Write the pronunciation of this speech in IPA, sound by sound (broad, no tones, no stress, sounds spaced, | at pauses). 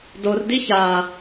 d o r d i ç a